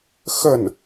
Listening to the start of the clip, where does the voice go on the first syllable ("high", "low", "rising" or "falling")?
falling